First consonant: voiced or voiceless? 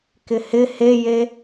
voiceless